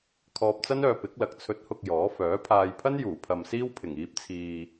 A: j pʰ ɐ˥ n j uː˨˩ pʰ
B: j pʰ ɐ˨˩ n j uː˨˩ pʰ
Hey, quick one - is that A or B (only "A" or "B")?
A